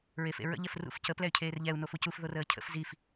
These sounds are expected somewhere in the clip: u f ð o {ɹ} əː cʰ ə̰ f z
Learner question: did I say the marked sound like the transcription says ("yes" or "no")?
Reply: no